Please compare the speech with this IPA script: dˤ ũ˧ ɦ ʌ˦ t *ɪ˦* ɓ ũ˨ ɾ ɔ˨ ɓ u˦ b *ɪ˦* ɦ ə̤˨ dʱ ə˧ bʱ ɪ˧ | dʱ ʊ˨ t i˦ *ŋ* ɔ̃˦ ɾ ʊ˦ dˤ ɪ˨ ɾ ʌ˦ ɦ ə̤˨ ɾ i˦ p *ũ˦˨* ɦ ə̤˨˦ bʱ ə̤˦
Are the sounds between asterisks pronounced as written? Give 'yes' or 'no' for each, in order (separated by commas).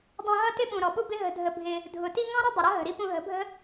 yes, yes, yes, no